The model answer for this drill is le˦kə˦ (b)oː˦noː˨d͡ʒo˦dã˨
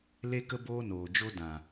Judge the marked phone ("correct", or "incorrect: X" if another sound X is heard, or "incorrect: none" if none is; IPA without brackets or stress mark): correct